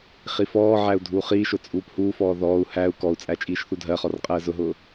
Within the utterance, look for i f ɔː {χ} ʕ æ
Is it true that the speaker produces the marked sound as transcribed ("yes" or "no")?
no